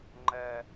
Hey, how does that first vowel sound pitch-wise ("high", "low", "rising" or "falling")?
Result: high